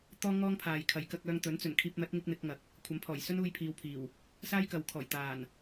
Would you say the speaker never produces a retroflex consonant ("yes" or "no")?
yes